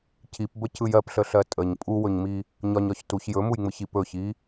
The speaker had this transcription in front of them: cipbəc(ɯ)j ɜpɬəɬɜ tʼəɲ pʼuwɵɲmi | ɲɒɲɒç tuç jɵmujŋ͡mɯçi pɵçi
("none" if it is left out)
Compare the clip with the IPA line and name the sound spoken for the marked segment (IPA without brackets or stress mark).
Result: ɯ